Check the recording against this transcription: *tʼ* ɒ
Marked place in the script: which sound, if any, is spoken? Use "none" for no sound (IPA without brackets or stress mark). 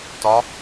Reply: t